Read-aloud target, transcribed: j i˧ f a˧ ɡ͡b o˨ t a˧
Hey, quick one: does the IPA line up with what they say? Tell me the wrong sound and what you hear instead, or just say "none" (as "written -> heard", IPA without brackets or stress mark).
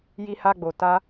f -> h